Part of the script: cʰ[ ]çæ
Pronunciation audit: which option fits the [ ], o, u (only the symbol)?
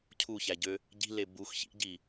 u